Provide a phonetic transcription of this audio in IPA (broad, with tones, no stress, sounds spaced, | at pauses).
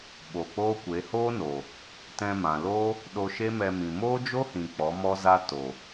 ɓ o˨ k͡p oː˦ kʷ e˨˦ h oː˦ n oː˨ | t ɛ̃˧ m ã˨ l oː˦ | ɗ o˧ ʃ e˦ m ɛ˧ m ĩ˨ m oː˦ d͡ʒ o˦ h ĩ˨ k͡p ɔ˨˦ m ɔ˦ z a˦ t o˨